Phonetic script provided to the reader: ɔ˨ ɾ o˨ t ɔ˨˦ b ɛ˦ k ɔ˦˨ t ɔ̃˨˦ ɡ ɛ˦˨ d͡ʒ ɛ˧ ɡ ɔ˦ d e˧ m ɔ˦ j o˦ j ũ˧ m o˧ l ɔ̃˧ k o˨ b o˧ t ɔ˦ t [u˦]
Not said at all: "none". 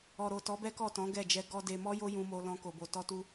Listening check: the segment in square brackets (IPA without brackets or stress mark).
u˦